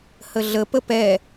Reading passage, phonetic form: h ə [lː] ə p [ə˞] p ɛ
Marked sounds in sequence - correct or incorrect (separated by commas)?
incorrect, incorrect